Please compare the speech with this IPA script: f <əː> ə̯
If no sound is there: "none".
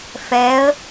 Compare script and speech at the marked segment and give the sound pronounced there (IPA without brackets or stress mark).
ɛː